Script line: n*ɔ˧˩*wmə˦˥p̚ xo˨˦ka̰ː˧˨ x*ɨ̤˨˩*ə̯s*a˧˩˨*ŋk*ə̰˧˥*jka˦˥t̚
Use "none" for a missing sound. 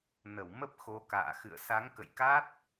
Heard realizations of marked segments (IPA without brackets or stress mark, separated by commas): ə˧˩, ɨ̰˧˨, a˨˦, ə̰˧˨